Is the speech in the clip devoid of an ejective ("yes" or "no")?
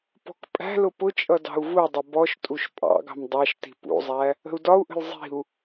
no